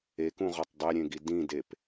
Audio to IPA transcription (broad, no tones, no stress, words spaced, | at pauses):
ekũʁɒtˤ dˤeɾʲẽɡi dĩdep